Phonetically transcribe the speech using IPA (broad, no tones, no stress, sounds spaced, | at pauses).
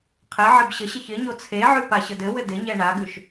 qʰ ɪ ʕ ɪ b ɕ ə ɕ ɪ ç ɪ ɲ o t͡sʰ e ʕ ʉ p a ɕ ə d ɘ w ɘ d ɪ ɲ ɛ ɳ a ɡ ʉ ʃ